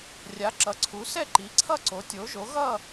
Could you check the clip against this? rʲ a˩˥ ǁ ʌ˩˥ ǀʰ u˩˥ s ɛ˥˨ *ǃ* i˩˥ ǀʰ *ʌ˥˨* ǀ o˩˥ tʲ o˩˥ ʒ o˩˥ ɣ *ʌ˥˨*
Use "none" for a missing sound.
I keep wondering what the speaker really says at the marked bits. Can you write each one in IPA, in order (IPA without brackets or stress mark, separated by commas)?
ǃ, ʌ˥˨, ʌ˥˨